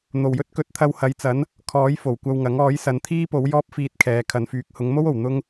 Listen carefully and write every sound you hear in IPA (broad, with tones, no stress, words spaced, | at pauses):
n̪o˨˩wjɵ˥t̚ kɵ˨t̚t̪ʰɐ˧whɐ˨˧jt͡sɐ˨˥n | kʰɔː˨˥j fo˨˩wkʷɐ˧wŋɐ˨˥ŋ ɔː˨˥jsɐ˨˧nt̪ʰiː˥po˨˥w jɔː˥p̚fiː˧t̚kʰɛː˨ kʰɐ˨nfyː˨˥k̚ hʊ˨˧ŋmo˥wo˨˩w n̪ʊ˥ŋ